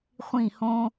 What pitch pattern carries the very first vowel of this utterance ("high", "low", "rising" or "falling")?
falling